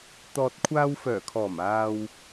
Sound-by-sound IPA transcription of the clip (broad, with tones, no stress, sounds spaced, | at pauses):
t̪ ɔː˨ t̚ kʷʰ aː˧ w f œː˨˩ kʰ ɔː˨˩ m aː˨ w